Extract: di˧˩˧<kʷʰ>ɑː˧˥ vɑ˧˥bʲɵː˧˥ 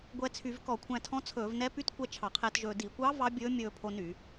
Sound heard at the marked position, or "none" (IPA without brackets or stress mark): kʷ